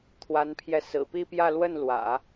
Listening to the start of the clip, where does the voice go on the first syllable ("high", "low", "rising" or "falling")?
rising